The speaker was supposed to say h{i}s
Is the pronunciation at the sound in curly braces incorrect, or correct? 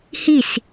correct